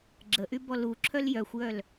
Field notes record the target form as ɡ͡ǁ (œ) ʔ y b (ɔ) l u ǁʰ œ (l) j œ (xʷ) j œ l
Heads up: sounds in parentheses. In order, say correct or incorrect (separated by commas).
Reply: incorrect, correct, correct, correct